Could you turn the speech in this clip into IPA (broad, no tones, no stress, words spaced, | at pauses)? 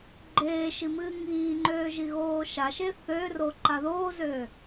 ɡ͡ǃeː ʃimɨːŋiːŋ͡ǃøː ʒiɣoːʃaʃe θø roǃaðoːzøː